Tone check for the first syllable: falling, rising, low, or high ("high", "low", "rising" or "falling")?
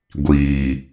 low